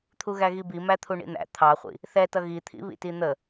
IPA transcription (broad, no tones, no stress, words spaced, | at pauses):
t̪ʰuɣæɣibi mæt̪ʰuɳḭn̪æ̰ t̪ʰɑχʷḭ | θɛtʌ ɣit̪ʰḭ βḭtin̪ə